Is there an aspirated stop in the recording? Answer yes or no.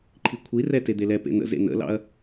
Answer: yes